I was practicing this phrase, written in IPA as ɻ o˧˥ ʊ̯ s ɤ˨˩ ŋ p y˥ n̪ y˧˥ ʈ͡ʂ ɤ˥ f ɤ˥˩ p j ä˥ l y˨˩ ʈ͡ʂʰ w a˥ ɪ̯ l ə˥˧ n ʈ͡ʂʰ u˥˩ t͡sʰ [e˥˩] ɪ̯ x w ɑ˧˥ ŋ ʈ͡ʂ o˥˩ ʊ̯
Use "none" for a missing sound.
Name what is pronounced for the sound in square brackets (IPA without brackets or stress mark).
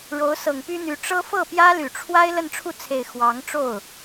e˨˩